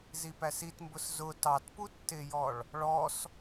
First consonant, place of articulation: alveolar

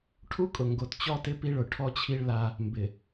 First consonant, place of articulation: retroflex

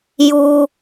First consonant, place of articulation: palatal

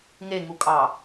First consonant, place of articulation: velar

